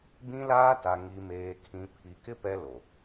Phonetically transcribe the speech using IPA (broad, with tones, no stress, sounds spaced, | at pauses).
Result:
b ĩ˦ l aː˦ t a˨ ŋ i˨ m eː˨ kʰ ĩ˨ pʰ i˨ k ɪ˦ p ɛ˦ l o˨